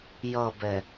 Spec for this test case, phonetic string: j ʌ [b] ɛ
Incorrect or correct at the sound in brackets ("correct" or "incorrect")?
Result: correct